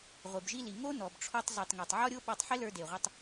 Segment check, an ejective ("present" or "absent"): absent